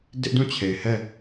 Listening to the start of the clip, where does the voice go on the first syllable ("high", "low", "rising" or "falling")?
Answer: high